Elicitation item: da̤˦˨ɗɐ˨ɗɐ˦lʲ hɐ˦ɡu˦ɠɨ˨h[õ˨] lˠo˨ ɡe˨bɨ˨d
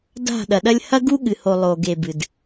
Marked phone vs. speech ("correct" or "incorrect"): incorrect